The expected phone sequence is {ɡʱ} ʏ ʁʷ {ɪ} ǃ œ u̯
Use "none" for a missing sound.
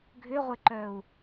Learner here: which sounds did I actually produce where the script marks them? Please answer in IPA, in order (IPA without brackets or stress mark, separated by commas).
ɡʱ, ɪ